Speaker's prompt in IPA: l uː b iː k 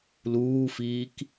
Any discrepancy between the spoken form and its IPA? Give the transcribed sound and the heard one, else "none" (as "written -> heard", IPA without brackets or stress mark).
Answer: b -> f